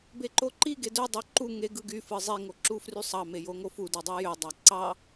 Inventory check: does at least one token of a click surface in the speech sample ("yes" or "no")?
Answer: yes